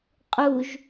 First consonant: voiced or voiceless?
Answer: voiceless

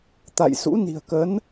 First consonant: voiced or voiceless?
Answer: voiceless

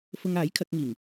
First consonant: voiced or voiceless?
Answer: voiceless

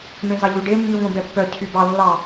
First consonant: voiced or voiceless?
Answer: voiced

